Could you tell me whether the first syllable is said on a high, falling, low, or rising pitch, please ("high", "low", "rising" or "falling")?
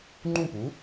falling